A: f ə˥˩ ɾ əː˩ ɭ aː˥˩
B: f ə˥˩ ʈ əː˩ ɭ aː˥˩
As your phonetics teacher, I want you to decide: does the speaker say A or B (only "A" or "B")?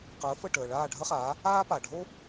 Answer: B